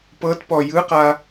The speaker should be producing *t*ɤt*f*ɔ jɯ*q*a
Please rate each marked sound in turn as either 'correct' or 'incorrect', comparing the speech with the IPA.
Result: incorrect: p, incorrect: p, correct

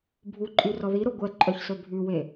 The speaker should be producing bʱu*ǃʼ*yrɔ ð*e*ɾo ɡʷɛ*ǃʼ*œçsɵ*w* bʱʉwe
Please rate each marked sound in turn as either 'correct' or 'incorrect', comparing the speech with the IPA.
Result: correct, incorrect: i, correct, incorrect: none

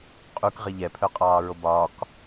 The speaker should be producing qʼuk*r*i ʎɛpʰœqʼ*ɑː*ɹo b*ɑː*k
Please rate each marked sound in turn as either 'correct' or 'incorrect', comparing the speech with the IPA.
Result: incorrect: ʁ, correct, incorrect: ɒː

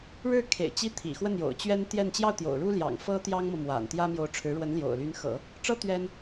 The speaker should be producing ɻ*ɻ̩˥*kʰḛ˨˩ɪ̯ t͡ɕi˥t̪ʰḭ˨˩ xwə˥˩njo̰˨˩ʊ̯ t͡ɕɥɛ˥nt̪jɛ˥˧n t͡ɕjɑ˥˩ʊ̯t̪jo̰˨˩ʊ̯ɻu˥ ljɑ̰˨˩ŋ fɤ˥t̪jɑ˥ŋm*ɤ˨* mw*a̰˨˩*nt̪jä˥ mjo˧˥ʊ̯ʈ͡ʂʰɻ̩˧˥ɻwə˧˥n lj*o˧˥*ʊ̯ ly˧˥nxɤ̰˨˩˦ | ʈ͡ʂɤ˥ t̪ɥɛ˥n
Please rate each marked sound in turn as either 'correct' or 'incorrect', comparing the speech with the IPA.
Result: incorrect: ɻ̩˥˩, correct, correct, incorrect: o̰˨˩

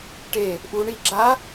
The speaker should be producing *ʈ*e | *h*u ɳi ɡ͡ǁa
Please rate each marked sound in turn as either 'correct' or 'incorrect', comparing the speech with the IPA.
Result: correct, incorrect: ʔ

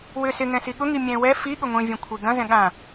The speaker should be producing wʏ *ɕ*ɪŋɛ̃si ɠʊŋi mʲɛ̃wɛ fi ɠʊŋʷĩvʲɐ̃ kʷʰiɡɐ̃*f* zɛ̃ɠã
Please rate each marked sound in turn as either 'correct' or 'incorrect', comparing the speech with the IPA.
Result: incorrect: s, incorrect: none

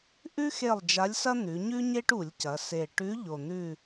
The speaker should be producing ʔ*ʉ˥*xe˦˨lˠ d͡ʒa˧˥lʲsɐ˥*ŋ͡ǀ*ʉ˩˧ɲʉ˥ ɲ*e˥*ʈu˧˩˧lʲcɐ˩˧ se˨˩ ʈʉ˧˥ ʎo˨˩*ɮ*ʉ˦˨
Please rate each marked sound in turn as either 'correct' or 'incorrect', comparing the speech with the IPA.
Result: correct, incorrect: n̪, correct, incorrect: n̪

